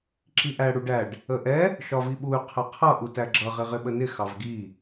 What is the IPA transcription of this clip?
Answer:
ǁ i ʔ æ ɽ u ɖ æ ɖ | ə ʔ ɛ | ʃ ɒ v i ɓ u y̯ qʰ ɛ qʰ ʌ ʔ u t æ ɡ͡ǁ ʌ ʁ ɪ ʁ ɪ ɓ ə n ɪ x ɑ v ɡ i

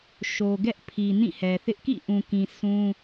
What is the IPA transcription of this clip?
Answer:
ʃ o˨ ɡ ɛ˦ ʔ pʰ i˨ n ĩ˦˨ h ɛ˨ θ ɪ˦ ʔ k ḭ˦˨ ʔ ũ˨ k ĩ˨ sʰ ũ˦

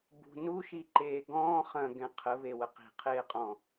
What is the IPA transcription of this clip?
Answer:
b ṳ n u ʃ i ǃ eː ɡ ɔ̃ː χ ɐ̃ ɡ ɛ̃ qʰ ə β e w ə q i̤ qʰ eː qʼ ɔ̃

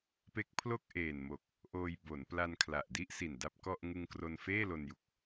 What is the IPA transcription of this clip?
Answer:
p e˦˥ k̚ pʰ l o˥˩ k̚ ʔ eː˨˩ n m o˨˩ k̚ | ʔ oː˧ j b o˩˦ n p l a˧ n kʰ l a˨˩ ʔ d i˥˩ ʔ s i˨˩ n d a˥˩ p̚ k ɔ˥˩ ʔ ŋ ɯ˧ ŋ k r o˧ n f eː˥˩ l o˧ n j u˨˩ k̚

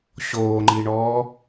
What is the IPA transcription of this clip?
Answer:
ɕ oː ŋ͡ǃ i ɳ ɔː

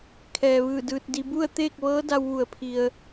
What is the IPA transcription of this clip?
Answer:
kʰ ɛː˩ ʋ ɯː˧˩ d ɯː˧ t̚ d i˧ b u˥˨ ə̯ t̪ eː˥˨ k̚ ʋ ɤː˧˥ d a˧ w ʋ u˩ ə̯ pʰ i˩ ə̯

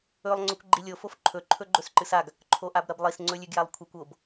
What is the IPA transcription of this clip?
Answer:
ɵ lˠ ŋ͡ǀ ɵ kʷ ɡ͡ǃ i lʲ o f o f ǃʰ ɵ ǃʰ ɵ ɡ͡ǃ ɵ s ǃ ɨ s a ɡ | ǃʰ o ʔ a b ɾ ɐ b lˠ i s ŋ͡ǀ ɵ lʲ ʉ ɡ j a lˠ kʷʰ e kʷ o b

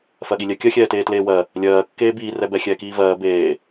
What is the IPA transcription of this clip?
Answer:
f ɜ ɠ i lʲ ɛ kʲ ɜ xʲ ɛː t eː t l eː w ɜ | lʲ ɜː kː eː b iː r ɛ b ɛ xʲ ɛː k iː v ɜː b eː

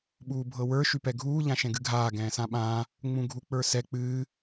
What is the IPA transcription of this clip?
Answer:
ɓ uː bʱ ɤ w ə˞ ʃ y p ɛ ɡʱ uː ʎ ã ʃ ɛ̃ ɡ ɨ ɡʱ aː ɡ ɛ̃ː s ã ɓ ãː | ŋ͡m ũ ɡʱ u k͡p ə˞ s ɛ k͡p ɨː

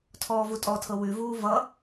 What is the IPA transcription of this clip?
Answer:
tʰ ɔː v u tʼ ɔ tʰ ɤ w ʉ v uː v ʌ

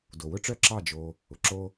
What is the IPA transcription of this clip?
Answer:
d o˨ w ʊ˦ ʈ͡ʂ œ˦ ǁ ɑ˦˨ d͡ʒ o˧ | ʊ˨ ǁ o˦

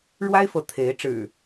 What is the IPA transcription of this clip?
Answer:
ɻ w a˦ ɪ̯ f ɤ˨˦ t̪ʰ e˨˦ ɪ̯ ʈ͡ʂ ɻ̩˨˩

